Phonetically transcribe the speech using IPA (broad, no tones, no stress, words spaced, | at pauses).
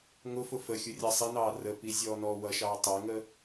ŋʊfʊ fəxʲʊ rʲɑsˤinɑː rəpi zʲɔːnɔːwʌʃɑː tˤəːŋəː